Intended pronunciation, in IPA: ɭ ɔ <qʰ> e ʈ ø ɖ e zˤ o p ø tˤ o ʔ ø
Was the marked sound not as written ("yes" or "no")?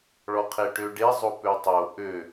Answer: no